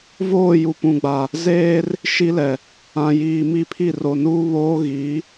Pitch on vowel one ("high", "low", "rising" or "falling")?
falling